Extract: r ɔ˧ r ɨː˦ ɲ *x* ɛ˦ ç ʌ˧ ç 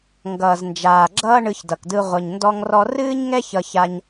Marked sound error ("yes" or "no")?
yes